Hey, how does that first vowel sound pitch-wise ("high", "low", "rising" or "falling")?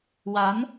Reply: rising